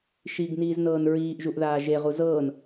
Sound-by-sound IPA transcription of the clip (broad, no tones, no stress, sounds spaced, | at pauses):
ʃ i ɡ n iː z n ɤː n ɹ iː ʔ ʒ u ʔ ð aː ʒ e ʁ u z ɤː n